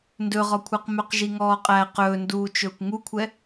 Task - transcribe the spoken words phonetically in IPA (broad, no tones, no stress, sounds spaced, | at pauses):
n d ɵ ʁ ɔ kʷʰ ɛ q m œ q ʒ i ŋ ɔː qʼ æ q ɵː n d uː t͡ʃ ɵː kʷ ŋ u kʷʰ ɛ